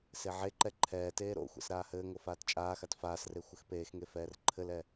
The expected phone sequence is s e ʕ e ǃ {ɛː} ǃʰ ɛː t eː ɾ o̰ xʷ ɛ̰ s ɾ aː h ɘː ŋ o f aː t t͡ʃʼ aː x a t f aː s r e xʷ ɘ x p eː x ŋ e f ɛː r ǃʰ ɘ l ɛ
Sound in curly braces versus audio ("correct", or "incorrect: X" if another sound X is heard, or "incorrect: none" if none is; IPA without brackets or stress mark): incorrect: ɛ